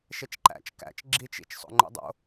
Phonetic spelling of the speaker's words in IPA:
ʃet͡ʃǃæ̰t͡ʃ kæ̰t͡ʃ ɡ͡ǁit͡ʃ ḭt͡ʃ sˤo̰ŋ͡ǃo̰dˤo̰

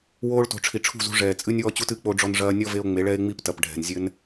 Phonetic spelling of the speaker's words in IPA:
woː˧ɭto̤˨ ʈ͡ʂʰi˨ʈ͡ʂʰṳ˦˨zṳ˧ ʐɛː˨t͡sʼɨ˦nʲ wɔ˦t͡ɕu˦t ɨ˧k͡po˧ɖ͡ʐɔ˧n ʐɐː˧nʲɔ˦ve˧o̯ ŋ͡me˨˦ɭɛ˦e̯ŋ͡mi˦p tɐ˨pɖʱɛ̤˨n zʲɘ˦n

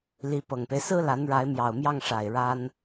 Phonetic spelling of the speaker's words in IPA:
li˧˥pɤ˨˩ŋpe˦ɪ̯ sɹ̩˥la˧˥nɻa˧˥ɪ̯ mjɑ˨˩ʊ̯mjɑ˥˩ŋʂa˨˩ɪ̯ ɻa˥n

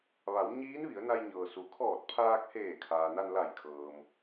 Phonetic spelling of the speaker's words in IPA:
ʋa˩˧w ɲiː˧˥nʋi˩˧ə̯na˧j ɲɤː˩su˩kʰɔː˧˩t̚ pʰaː˧k̚heː˧˩ kʰaː˩na˧nla˧˩jkʰɤː˩m

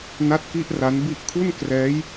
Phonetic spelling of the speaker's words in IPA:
na˥˩t̚ki˥˩ʔra˦˥n bi˦˥ʔkʰu˥˩nkrɛː˦˥j

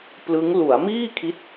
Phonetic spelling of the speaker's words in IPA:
plɯ˦˥ŋ lu˩˦a̯miː˥˩kʰi˦˥t̚

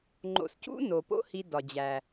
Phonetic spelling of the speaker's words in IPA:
ŋ͡ǃo̰˨scṵ˥no˩po̰˦ hi˨dɒ˩d͡ʑæ˩

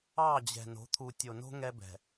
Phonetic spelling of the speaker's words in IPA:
ɑ˦˨d͡ʑɛ̤˨ no̤˨˦t̪ʰu˨tʲo˨no̤˦ ŋɛ˦bɛ̤˨

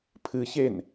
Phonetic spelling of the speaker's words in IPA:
pʰɨçen

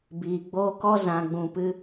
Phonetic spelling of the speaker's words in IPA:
biː˨ɡ͡boː˦ kɔ˦ zã˨ɡ͡bũ˨ pɨ˧

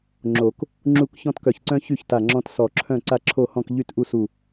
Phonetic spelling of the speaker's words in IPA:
ŋ͡ǁo˨˩˦k | ŋ͡ǁu˥˨k çɔ̃˦tkœ˧˩çǀœ̃˦ çy˥˨çta˧˩ŋ͡ǁɔ̃˦t sɔ˧˩ǁʰœ̃˥˨ ǀa˥˨ǁʰo˥˨hɔ̃˥˨k ʎy˥˨tʔu˦su˧˩

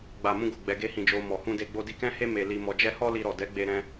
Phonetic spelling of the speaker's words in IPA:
ɡ͡ba˨mũ˧ɡo˨ ɡ͡bɛ˧ɡe˦hĩ˧d͡ʒo˧ mɔ˨ hũ˧de˧ ɡ͡bo˧di˧kɛ̃˦he˦ me˧li˧ mɔ˧d͡ʒɛ˦ hɔ˦li˧ɾɔ˨ dɛ˨˦ɡ͡be˧ɾɛ̃˧

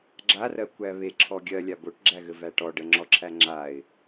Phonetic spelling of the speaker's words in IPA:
ɡ͡ǁarɜ kʷæβe ǁʰɔɡʲɜ lʲaboʈɡ͡ǁæɣɘ væʈɔ ɖəŋ͡ǁɔǁʰæ ŋ͡ǁaɪ̯

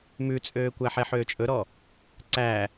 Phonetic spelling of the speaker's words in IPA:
mʉt͡sʼøːkʷæħɛ ħøːt͡ʃʼɵɾɔ | ǀæ

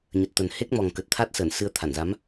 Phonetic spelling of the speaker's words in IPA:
ɲə˨˩t̚t̪ə˨˩n he˦˥k̚mɔ˨˩ŋ kə˨˩t̚t̪ʰa˦˥t̚səː˧˩n sɨ˧ə̯t̪ʰa˧˩nza˨˦m

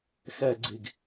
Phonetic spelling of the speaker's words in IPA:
xɛɡ͡ǀiɡ

